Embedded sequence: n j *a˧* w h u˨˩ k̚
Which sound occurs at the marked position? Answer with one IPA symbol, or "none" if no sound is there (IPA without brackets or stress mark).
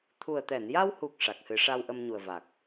a˧